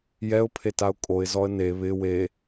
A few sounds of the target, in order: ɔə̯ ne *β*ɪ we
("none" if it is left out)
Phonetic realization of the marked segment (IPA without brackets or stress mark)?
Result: β